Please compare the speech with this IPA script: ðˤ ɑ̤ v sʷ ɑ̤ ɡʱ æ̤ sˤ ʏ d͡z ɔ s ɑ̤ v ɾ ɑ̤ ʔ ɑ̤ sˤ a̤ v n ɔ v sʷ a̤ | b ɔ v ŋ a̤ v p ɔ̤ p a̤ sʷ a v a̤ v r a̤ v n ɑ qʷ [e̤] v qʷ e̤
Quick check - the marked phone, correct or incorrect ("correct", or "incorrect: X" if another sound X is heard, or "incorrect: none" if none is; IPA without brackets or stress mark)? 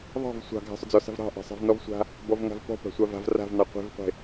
correct